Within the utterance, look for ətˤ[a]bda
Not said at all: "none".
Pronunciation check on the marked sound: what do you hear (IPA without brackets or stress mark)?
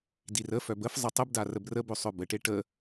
ə